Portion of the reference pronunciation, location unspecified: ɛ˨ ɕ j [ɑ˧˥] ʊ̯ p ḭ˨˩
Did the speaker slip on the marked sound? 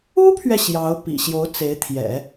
no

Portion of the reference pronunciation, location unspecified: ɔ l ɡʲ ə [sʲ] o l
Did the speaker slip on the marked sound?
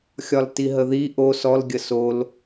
yes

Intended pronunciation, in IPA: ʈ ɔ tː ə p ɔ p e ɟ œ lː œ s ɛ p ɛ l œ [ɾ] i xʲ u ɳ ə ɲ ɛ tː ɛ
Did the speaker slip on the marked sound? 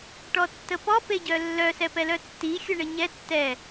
yes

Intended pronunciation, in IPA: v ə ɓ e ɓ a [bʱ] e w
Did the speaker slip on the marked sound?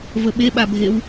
no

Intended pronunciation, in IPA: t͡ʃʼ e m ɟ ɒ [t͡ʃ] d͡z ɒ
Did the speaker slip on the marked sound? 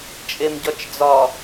no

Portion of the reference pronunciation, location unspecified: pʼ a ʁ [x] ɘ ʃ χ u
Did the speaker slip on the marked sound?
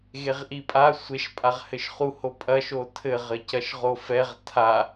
yes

